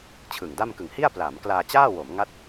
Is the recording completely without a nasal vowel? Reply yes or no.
yes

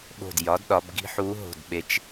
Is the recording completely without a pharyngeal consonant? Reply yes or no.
no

